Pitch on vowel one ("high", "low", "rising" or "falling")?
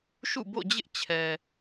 falling